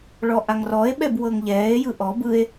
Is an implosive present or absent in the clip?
present